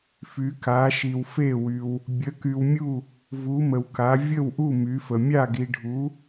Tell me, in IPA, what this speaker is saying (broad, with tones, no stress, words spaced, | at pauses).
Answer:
fy˧˥ka˧˥ ʃi˧wfe˥˧wy˧w | bʲə˧˥ky˧wmʲu˥˧ | vu˧˥mə˧wka˧˥ vʲə˥˧wʔu˥˧ my˧˥fə˧ mʲa˥˧ɡi˧ɖʱu˧˥